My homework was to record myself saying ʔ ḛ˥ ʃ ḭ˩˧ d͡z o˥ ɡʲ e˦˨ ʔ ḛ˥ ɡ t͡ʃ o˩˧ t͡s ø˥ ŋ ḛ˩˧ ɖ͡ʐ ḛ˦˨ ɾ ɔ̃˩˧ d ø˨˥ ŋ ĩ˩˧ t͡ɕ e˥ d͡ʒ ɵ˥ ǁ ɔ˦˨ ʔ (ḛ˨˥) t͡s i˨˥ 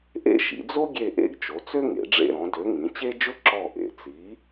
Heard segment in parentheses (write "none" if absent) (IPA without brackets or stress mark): ḛ˩˧